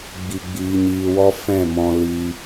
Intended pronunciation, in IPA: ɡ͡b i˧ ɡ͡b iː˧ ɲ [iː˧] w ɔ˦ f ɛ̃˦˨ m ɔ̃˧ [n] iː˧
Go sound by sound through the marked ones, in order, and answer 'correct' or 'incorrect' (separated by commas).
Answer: correct, incorrect